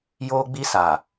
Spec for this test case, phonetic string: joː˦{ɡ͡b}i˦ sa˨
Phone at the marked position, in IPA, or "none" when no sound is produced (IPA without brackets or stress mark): ɡ͡b